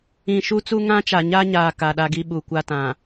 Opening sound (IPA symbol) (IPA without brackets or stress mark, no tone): ĩ